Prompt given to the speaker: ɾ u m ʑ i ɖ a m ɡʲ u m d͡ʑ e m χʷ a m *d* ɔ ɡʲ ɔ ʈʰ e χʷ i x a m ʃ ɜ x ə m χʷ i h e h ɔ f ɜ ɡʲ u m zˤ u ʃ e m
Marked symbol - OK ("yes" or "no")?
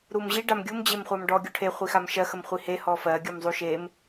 no